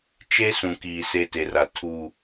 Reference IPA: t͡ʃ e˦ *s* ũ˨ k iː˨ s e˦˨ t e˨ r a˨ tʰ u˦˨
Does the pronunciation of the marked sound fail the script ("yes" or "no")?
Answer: no